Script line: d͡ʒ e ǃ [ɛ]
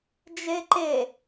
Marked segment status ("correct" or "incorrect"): incorrect